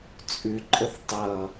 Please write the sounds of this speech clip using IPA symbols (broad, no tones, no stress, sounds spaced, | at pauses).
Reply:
t͡sʼ ʉ ǃʼ ə θ tˤ ʌ